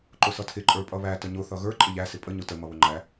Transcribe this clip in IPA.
ǃ ʊ s ʌ tʰ ɪ ǃʼ ə˞ pʼ ʌ β æ t ə ɲ ʊ θ ʌ ɣ ə˞ ǃʼ ɪ ʎ æ s ɪ pʼ ə ɲ ʊ t ə m ʌ β ʊ ŋ͡ǃ æ

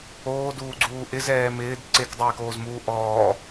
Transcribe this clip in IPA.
oː d uː ɡ͡ǀ uː ʔ ɪ z ɛː m ɪː d ǀ e k dˤ ɛː k oː z m uː ʔ ɔː

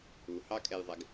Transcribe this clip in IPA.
u h ɑ kʼ ɛ j ðˤ ɛ ɡ

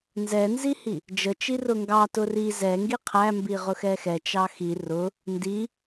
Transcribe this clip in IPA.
n z ɛ n z i h i | d͡ʒ ə t͡ʃ i r ʊ ŋ ɡ ɑ t ʊ r i z ɛ ŋ ɡ i qʰ æ m b i ʁ ʊ x ɛ x ɛ t͡ʃ ɑ x i r ʊ | n d i

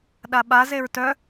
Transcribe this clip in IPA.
ɗ a ɓ a z e ɹ t œ

